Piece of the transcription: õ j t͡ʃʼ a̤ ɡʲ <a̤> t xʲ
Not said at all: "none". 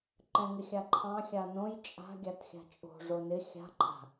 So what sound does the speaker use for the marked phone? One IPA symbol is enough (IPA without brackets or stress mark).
a